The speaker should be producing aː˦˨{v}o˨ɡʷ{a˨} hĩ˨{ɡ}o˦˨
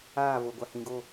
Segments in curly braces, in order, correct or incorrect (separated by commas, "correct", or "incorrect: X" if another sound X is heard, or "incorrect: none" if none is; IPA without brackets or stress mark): correct, correct, correct